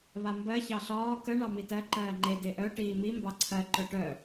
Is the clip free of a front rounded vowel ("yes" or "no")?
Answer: no